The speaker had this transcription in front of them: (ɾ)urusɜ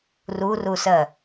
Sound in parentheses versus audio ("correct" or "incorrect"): incorrect